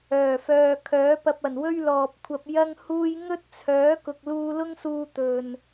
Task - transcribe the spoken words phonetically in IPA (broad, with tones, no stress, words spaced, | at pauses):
œː˨˩fœː˨ kʰœː˨˥pɐ˧p̚ ɐ˨˩nwɵ˥ɥlɔː˨p̚kʷʰɐ˧p̚ jɐ˥ŋhuː˥j ŋɵ˥t̚t͡sʰœː˨˥ kʊ˨k̚luː˧lʊ˥ŋsuː˧ t̪ɵ˨n